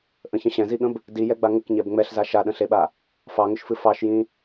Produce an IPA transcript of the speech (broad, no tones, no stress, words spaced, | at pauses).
ʔə̃çə̃ ɕɛ̃ziɠə̃b | dijɛɡ͡ba ŋəkɲɛb ŋ͡mɛɬza ʃaɗə̃ɬeɓa | fɑŋʏʃfɨ fɑʃjĩ